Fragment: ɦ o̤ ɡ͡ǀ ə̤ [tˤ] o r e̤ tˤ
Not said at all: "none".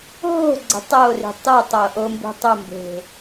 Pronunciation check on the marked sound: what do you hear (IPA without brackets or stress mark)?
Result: tˤ